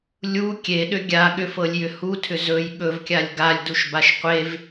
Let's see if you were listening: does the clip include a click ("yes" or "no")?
no